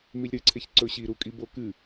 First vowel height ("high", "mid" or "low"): high